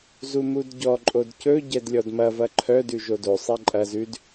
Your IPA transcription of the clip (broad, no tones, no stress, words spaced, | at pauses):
zumudɟɔǃʼod cɵ ɟɛdlʲɔdmɐvɐ ǃʰœdʉ ʒodosˤɛ ǃʼɐ zʉd